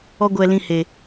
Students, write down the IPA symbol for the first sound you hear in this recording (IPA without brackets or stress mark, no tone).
ɔ